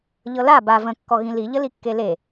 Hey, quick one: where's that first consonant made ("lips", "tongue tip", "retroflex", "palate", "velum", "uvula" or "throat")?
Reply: palate